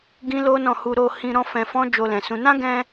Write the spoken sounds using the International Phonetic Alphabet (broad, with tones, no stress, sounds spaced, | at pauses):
ɡ ĩ˦ l o˦ n ɔ̃˦˨ h u˧ ɾ o˧ h ĩ˧ ɾ ɔ̃˦ f ɛ̃˧ f ɔ̃˦ d͡ʒ o˧ l ɛ̃˨ s ũ˨˦ n ã˦ ɡ ɛ̃˧